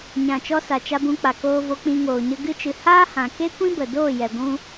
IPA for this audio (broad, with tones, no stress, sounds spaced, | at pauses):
ɲ ã˨ t͡ʃ ɔ˧ s a˨ t͡ʃ a˧ b ũ˧ k͡p a˨ k oː˧ v o˧ k͡p ĩ˧ ŋ oː˨ ɲ ə˧ ɡ ɨ˦ t͡ʃ ɨ˧ h aː˦ h ã˨ k e˦ kʷ ĩ˦ b ə˨ d oː˦˨ j ɛ˨ ɡʷ ũ˧